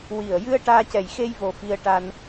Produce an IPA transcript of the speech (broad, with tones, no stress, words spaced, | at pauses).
wi˨˩ə̯jɨ˧ə̯ ʈaː˧cɛ˨˩jxe˧jvo˨˩ fi˧ə̯ʈa˧n